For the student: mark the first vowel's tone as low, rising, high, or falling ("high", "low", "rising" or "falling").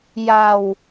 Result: low